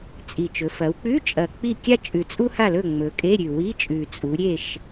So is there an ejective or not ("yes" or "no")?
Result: yes